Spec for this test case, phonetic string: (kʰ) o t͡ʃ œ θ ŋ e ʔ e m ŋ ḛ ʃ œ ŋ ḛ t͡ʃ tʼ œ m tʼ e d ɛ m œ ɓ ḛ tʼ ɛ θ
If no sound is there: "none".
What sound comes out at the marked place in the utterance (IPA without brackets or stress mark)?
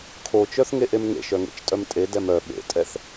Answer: kʰ